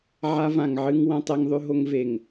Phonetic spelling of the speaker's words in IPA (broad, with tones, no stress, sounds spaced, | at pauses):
ʕ a˦ v ã˨ ŋ ʕ ɨ˦ ŋ w ɐ̃˦ tˤ e˦ ŋ ðˤ ʉ˦ ɦ o˦ ŋ v e˨ ŋ